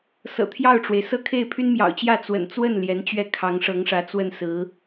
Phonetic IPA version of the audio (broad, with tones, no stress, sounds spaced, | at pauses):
s ɤ̰˨˩ t̪ʰ j ɑ˥˩ ʊ̯ ʈ͡ʂ w e˩ ɪ̯ s ɤ˥˧ kʰ e˥˩ ɪ̯ pʰ y˥ n m j ɑ̰˨˩ ʊ̯ t͡ɕ j ä˥˩ t͡s w ə̰˨˩ n t͡s w ə˥˩ n l j ɛ˧˥ n t͡ɕ ɥ ɛ˥˩ kʰ ɑ˧˥ ŋ ʂ ɤ˧˥ ŋ ʂ ä˧˥ t͡s w ə˥˩ n s ɹ̩˧˥